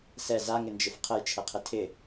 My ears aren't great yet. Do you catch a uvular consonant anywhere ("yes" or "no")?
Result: yes